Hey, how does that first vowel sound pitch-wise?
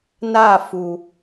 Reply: falling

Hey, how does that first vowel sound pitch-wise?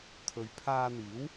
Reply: low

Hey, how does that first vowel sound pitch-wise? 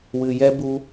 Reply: low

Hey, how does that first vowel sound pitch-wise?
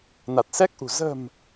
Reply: low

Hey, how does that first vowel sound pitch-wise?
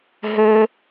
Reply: high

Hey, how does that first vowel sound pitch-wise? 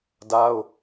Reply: high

